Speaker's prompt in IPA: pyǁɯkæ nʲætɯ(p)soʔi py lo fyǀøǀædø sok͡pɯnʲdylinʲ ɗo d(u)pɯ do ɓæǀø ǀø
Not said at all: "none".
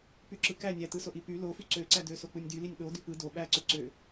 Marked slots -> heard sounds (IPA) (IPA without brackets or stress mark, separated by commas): none, y